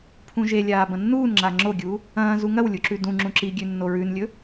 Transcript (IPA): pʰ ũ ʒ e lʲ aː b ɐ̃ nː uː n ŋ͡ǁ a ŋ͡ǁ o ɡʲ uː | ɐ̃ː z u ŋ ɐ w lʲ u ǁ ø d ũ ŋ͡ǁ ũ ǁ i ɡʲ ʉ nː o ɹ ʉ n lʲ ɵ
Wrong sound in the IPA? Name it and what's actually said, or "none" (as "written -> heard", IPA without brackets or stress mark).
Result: ø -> ʉ